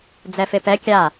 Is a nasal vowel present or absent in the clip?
absent